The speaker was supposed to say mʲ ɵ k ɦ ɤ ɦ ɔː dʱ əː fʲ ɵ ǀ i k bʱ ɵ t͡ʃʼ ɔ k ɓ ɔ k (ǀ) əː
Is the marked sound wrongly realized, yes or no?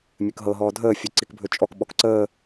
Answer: no